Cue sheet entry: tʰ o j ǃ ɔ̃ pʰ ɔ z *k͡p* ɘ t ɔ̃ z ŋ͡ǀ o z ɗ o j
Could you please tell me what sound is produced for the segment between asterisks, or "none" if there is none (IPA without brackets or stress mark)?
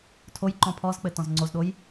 k͡p